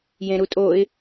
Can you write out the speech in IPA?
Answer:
jẽɾutʼoɪ̯

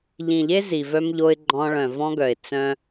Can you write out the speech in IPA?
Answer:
ʎĩ˨ʎe˦ zi˨vœ˦mʎo˦ɪ̯ɡ͡ǃɔ̃˦ ɭœ̃˨vɔ̃˦ɡœ˨ɪ̯ t͡sœ̃˦

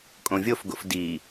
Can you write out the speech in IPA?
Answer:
kʼõvʲofɡo̰f di

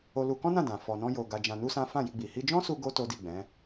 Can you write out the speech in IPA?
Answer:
o˧lu˧kɔ̃˦nã˦˨ dã˨ fɔ˧nɔ̃˦jo˧ ɡa˧d͡ʒã˧nu˦sã˦ fã˦˨ji˧ɡ͡bi˨ hi˧d͡ʒɔ̃˦su˧ ɡo˦ to˦di˦˨ɡ͡bɛ̃˨˦

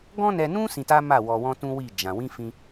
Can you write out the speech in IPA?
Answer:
ɡɔ̃˦nɛ˧nũ˦ sĩ˧ta˦ ma˦˨wɔ˧wɔ̃˦ tũ˦wi˦˨ d͡ʒã˧ wĩ˦fĩ˧

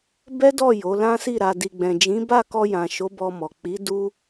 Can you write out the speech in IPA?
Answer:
bɛ˦dɔ˦˨ jo˨˦lã˦si˦˨ ɾa˨di˨ɡ͡bɛ̃˨ d͡ʒĩ˨˦ba˦˨ kɔ˧jã˨ʃo˨˦ bɔ˧mɔ˨ k͡pi˨˦ du˦

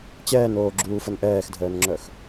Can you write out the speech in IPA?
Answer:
t͡ɕɛːnoːɡ͡ǁuːfən ʔɛːxdʱəːnŋ͡ǁœx

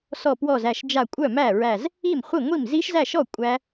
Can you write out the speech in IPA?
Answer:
sɔ˧˩pwɔ˧˩zæ˧˩ʃd͡ʒa˧˩ kʷʼœ˥˩mæ˥˩ɹæ˧˩z | i˥˩mχʷi˥˩ ŋʷi˥˩m zi˦˥ʃzæ˥˩ʃɔ˥˩ kʷʼæ˦˥

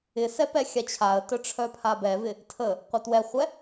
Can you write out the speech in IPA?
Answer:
ɪsɛ pɛxʲat͡ɕʰaə̯tœ ʈ͡ʂʰœpʰabɛvɪ | tʰə | qʷœtwɛχʷɛ

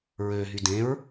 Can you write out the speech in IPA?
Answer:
ɹøɦy dẽɹ

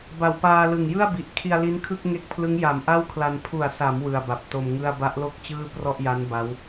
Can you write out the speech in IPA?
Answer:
ba˨˩wpaː˧lɯ˨˩ŋ jɯ˥˩a̯bi˨˩ʔ kʰi˧a̯li˦˥nkʰɯ˥˩k̚ ŋe˦˥k̚pʰlɯ˦˥ŋ ja˨˩mʔa˥˩wkʰla˧n pʰu˨˩a̯sa˩˦m wɯ˨˩a̯ba˨˩p̚to˧mŋɯ˥˩a̯ ba˦˥ʔlo˥˩k̚ t͡ɕɯː˥˩prɔ˥˩ʔja˦˥n ba˦˥w

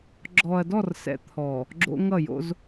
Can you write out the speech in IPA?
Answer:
ɡ͡ǁɔ˨ɐ̯dɔ˦˨r sɛ̰˦ t̪ʰɔ˨ | ɡ͡ǁo̰˦ŋʌ˦˨ jo̰˦z

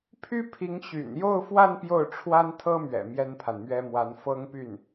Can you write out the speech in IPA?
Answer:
pʰy˥pʰi˧˥ŋ ɕy̰˨˩njo˥˧ʊ̯fwa˥˧n pjo˥˩ʊ̯ʈ͡ʂʰwa˥nt̪ʰɤ˥mɥɛ̰˨˩ mjɛ˥npʰa˨nmɥɛ˥ mwa˧˥nfɤ˥ŋpy˥˩n

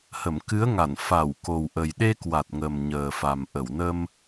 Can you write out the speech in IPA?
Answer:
hə˧˩mkɨ˨˦ə̯ŋa˧˩n fa˧˩wko˨˩w ʔə˨˩jɗe˧kwa˨˩t̚ŋə˨˩m ɲəː˨˩fa˨˩mʔə˧˩wnə˧m

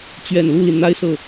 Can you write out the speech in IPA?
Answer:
t͡ɕɥɛ˨˩nlu˥˩li˩nn̪a˥˧ɪ̯ sɤ˥˩

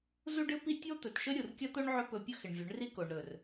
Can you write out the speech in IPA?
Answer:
zu˦ɖɨ˦pi˦ tʲo˦t̪ɵ˨tʃɵ˦ ɾʲu˨rkʲɐ˦ t̪o˦ɳ ʕɵ˦pɵ˧pʲɵ˦xɪ˨ɳ vʲɵ˨˦ɳri˦ ko˨ɳɾɵ˨r

